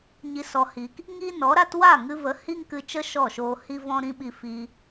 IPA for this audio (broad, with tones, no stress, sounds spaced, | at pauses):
ɲ i˧ s ɔ˧ h i˧ k | ŋ iː˦ n ɔ˨˦ ɾ a˦ t w a˦˨ ŋ ɨ˧ v ə˨˦ h i˦ ŋ k ɨ˧ t͡ʃ ə˦ ʃ ɔ˦˨ ʃ oː˧ h i˦ v ɔ̃˦ ɾ ĩ˦ ɓ i˧ f i˧